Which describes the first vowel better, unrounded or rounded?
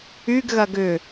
rounded